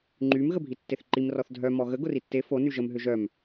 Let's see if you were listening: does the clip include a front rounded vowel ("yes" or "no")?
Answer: yes